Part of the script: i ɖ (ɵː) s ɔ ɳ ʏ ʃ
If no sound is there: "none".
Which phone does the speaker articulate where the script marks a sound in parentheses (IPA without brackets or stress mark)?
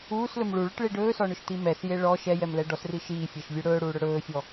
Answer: ɵː